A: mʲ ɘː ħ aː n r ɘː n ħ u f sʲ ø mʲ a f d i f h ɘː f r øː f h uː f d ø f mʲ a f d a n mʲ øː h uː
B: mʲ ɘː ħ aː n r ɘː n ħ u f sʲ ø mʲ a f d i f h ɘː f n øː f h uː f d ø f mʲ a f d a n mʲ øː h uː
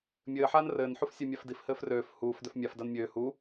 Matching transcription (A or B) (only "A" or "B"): A